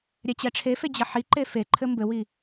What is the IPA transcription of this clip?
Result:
ɾʲɛt͡ɕɛʈ͡ʂʰefe d͡ʑɐħiǃe feǃʰɘ mbɘwi

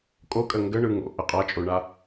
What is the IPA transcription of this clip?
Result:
kʼokʼə ŋɡəɳɯ ŋo̰ ʔəqʼat͡ʃʼoɳa

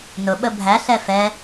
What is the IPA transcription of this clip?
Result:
nʊɓə bʱæɬɛ fɛ

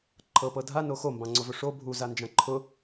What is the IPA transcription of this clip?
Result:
ǃʰɤpɤ dʱano xombɑ̃ŋ͡ǀovɵ ʂo bʱuzand͡ʒã ǃʰʊ

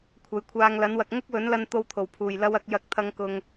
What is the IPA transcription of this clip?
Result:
kʷʰɐ˨jkʷʰaː˨˧ŋlɐ˨˥nwɐ˨k̚ ŋʊ˥k̚wɵ˨˥nlɐ˧n t̪o˧wt̪ʰo˨˩wpʰuː˨˩jlɐ˧w ɐ˨˥k̚jɐ˧k̚t̪ʰɐ˧ŋkʊ˨ŋ

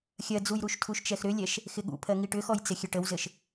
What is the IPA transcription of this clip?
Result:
xʲɜd͡zujɾuʃtʰuʃ t͡ʃɛxɾʏlʲɛʃ | xɪɠṵpʰɜ ŋiʈʏxɔjt͡sɪ xʲɘʈəwzɘʃ

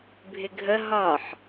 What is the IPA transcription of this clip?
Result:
bʱɪɡʱə ɦɒħ

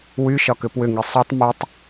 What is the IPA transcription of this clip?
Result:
wyʃɒkʏ pwʏŋi sˤytˤ mʉtˤ

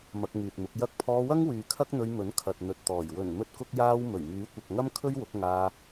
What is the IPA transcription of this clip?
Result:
mɐ˧k̚ŋyː˨t̚mʊ˨˥k̚ jɐ˥k̚ pʰɔː˧wɐ˥ŋwyː˨ kʰɐ˥k̚n̪ɵ˧ɥmɵ˨˥n kʰɐ˨t̚n̪ɵ˨t̚t̪ɔː˨˩j wɵ˨˩n mɵ˥t̚kʊ˥k̚jaː˥w mɵ˨˩ɥmyː˨˥kʷɐ˨k̚ŋɐ˥m kʰɵ˥ɥ wʊ˨˥k̚ ŋaː˧

